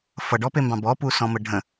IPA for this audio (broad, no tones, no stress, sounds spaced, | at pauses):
f ʌ ɖ ɔ p e m b ɑ̃ b ɔ p u s ɔ̃ m ə ɖʱ ə̃